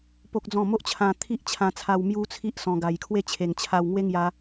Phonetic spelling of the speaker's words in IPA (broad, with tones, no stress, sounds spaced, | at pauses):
p o˦ k̚ d͡z ɔ̃˥˧ m o˦ ʔ t͡ɕʰ ã˧ t̪ʰ i˦ ʔ t͡ɕʰ ã˧ t͡sʰ a˧ w m j u˦ t͡sʰ i˦ ʔ s ɔ̃˧ ɡ a˧ j kʰ w e˥˧ t͡ɕʰ e˨˩ ŋ t͡ɕʰ a˧ w ŋ w e˦ ŋ j a˧